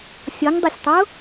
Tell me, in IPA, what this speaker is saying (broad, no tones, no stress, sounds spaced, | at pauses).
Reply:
sʲ ɔ ŋ dˤ e sʲ tˤ o